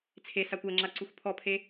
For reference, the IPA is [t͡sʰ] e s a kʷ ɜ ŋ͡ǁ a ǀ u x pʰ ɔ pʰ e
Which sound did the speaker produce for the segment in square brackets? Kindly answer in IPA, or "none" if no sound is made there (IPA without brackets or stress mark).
t͡sʰ